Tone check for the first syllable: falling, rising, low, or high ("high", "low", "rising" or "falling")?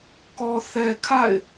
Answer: low